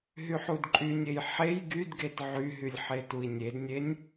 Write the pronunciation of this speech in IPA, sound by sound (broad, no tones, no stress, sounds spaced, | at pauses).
ɦ y ħ u d ǃʼ y nʲ e j ħ e j ɡ y d ɡ e t ʕ y ɦ y lʲ ħ e t u i̯ nʲ e d nʲ e nʲ